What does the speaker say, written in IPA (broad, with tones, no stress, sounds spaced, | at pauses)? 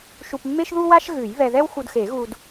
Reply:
ʃ u˧ p mː e˥ ʃ ð u˥ w a˥ ʃ ɣ ʉ˨˩˦ j β ɛ˧ ð ɛ˥ w x u˧ d x e˨˩˦ ɣ u˧ d